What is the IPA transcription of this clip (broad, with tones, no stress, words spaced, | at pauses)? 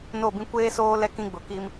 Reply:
no˦˨bĩ˦ kʷeː˦soː˦ lɛ˦kĩ˦ɡ͡bʊ˨ki˦m